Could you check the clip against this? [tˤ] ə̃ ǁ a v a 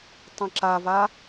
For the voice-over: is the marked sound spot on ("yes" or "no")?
yes